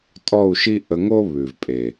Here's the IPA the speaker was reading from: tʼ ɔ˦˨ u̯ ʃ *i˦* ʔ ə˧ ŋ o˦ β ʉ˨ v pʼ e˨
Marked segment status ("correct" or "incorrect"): correct